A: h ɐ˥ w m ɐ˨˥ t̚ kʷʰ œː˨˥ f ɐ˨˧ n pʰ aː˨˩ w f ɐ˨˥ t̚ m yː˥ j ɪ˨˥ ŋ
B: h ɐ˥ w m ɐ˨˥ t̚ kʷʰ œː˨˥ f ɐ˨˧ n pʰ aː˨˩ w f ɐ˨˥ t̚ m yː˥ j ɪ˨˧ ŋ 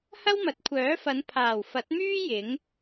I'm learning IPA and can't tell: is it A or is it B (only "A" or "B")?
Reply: A